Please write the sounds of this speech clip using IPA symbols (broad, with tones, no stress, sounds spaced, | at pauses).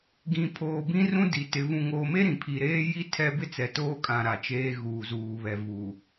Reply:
ɡ ĩ˨ pʰ oː˨ b ĩ˦ r ũ˦ d i˨ t ɪ˨˦ v ũ˨ ŋ oː˨ m e˦ ɾ ĩ˨ pʰ i˨ ɾ eː˦ j i˦ tʰ ɛ˦ b ɪ˦ t͡s ɛ˨ t oː˦ kʼ ã˨ ɾ a˨ t͡ʃ eː˦ ɣ uː˨ z uː˨ β ɛ˨ v uː˨